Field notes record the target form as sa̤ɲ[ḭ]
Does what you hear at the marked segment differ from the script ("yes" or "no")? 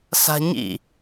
no